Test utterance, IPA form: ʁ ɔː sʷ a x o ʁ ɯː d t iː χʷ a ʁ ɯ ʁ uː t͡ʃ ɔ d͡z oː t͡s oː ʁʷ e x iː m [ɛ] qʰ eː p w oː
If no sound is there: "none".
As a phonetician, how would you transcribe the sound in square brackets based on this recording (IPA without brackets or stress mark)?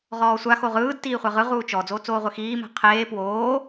ɛ̤